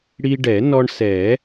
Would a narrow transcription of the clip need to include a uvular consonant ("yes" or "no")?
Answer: no